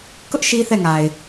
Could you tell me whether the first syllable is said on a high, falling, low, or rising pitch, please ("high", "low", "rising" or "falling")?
high